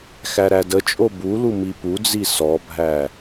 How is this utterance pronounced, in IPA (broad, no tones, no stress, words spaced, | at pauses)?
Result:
xæɾædət͡ʃʼo bulu mipud͡zi sɔbʱæ